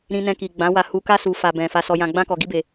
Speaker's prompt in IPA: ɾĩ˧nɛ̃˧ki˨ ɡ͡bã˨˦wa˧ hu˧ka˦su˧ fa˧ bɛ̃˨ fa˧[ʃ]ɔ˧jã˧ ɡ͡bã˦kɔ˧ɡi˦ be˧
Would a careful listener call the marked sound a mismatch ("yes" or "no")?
yes